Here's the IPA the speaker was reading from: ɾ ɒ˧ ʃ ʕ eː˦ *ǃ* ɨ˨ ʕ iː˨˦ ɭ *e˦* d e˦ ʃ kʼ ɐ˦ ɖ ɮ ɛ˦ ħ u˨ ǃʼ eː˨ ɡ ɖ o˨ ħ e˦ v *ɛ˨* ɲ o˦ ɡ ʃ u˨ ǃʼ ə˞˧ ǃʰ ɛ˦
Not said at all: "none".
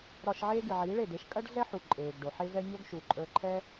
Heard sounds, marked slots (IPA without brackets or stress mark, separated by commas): ɡ, e˦˨, ɛ˦